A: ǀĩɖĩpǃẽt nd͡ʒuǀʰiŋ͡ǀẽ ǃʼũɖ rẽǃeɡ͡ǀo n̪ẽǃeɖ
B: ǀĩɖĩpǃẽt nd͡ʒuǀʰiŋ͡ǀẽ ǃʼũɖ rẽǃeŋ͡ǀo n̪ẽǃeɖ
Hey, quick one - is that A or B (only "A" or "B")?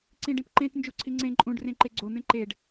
A